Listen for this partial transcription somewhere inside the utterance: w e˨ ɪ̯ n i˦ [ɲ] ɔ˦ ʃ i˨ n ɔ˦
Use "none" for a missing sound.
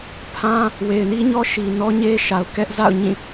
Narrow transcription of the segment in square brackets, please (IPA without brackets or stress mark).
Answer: ɲ